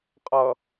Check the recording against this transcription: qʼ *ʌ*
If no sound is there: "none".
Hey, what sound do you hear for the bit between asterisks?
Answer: ʌ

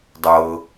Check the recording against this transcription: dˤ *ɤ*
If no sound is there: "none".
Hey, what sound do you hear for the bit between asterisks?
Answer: ɤ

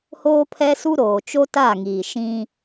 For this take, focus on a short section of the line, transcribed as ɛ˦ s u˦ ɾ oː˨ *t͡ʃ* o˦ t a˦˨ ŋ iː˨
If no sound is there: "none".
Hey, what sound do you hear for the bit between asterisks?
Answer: t͡ʃ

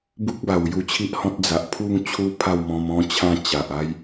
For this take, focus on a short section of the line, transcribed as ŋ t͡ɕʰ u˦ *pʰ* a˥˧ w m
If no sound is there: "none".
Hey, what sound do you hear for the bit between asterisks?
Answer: pʰ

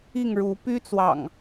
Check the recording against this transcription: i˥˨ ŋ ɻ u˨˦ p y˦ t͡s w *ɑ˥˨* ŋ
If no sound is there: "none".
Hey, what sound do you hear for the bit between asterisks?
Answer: ɑ̰˨˩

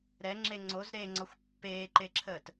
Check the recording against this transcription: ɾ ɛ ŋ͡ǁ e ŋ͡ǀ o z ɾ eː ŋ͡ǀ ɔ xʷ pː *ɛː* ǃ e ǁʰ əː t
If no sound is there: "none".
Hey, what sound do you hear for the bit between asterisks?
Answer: eː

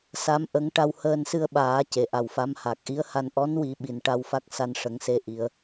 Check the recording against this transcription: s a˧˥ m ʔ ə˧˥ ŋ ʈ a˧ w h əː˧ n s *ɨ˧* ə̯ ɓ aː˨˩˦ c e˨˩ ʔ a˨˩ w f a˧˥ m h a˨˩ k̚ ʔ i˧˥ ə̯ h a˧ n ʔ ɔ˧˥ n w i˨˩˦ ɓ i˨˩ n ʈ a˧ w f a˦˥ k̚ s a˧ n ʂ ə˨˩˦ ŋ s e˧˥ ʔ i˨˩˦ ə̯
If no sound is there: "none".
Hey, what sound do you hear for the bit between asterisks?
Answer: ɨ˧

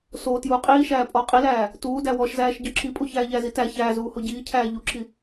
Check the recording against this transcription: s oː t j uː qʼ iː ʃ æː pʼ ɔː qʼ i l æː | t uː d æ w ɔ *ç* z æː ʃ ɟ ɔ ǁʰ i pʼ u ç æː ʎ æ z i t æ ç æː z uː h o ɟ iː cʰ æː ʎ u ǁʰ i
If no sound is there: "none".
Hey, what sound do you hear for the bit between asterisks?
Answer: ʃ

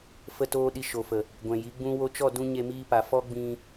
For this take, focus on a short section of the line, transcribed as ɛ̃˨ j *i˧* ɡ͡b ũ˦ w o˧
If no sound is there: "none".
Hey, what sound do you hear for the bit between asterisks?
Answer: i˨˦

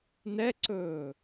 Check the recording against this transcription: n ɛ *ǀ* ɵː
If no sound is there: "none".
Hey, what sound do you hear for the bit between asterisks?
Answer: ǀ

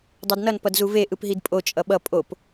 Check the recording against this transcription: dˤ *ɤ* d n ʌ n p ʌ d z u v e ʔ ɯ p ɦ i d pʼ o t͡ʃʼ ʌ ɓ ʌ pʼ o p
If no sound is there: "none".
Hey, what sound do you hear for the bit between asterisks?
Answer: o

